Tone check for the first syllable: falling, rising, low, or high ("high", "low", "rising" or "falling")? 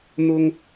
high